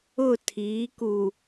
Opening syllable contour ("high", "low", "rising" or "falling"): falling